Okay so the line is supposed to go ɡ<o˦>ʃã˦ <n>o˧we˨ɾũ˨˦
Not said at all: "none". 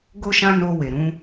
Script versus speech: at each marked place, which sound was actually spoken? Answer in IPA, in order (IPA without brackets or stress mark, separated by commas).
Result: o˦, n